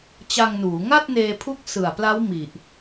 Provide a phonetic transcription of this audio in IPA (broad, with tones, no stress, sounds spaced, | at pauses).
t͡ɕ a˧ ŋ n uː˩˦ ŋ a˥˩ t̚ n eː˧ pʰ u˦˥ k̚ s ɯ˨˩ a̯ p l a˦˥ w m i˨˩ ʔ